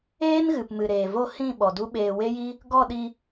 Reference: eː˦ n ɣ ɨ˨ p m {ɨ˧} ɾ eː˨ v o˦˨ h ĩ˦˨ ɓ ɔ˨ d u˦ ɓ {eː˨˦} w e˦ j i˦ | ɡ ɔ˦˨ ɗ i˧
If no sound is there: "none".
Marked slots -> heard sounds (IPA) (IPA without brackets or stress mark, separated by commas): ɨ˨, eː˧